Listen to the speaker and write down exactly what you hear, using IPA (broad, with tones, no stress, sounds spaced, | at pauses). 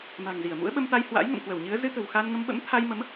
m a̤˨˩ ŋ z i˧˩ ə̯ m ṵ˧˥ ə̯ ɓ ə˧ m t̪ a˧ j h w a̰˧˥ j ŋ ə̰˧˨ m k w ə˧˩ w ɲ ɨ˨˦ ə̯ z ɨ˧ t̪ ə̤˨˩ w x a˧ n ŋ ə˧ m ɓ ə̰˧˥ m t̪ʰ a˧ j m ə˨˦ m